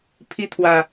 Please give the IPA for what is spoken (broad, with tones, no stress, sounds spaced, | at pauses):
pʰ i˦ t̪ʰ w ä˨